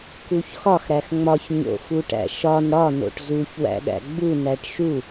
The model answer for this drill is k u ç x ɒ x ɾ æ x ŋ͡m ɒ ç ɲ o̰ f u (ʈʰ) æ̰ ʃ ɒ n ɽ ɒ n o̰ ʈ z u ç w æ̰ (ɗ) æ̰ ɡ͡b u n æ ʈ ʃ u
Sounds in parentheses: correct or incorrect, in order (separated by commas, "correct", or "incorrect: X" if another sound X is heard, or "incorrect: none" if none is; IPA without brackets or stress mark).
incorrect: ʈ, correct